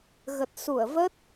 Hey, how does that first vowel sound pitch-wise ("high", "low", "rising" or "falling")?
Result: low